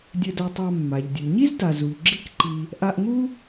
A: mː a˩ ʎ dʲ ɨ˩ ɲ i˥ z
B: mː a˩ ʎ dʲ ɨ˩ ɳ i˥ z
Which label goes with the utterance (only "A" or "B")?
A